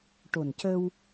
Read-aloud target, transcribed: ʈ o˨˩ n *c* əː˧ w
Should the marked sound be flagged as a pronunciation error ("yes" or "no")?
no